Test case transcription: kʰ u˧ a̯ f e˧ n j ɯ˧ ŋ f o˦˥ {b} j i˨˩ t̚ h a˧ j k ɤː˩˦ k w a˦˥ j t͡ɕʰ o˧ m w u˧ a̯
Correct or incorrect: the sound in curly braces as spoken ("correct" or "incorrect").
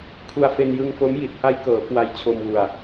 incorrect